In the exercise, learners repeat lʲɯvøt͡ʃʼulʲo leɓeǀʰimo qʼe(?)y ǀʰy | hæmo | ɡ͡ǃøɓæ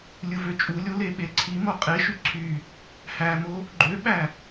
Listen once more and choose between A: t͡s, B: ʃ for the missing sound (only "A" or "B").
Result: B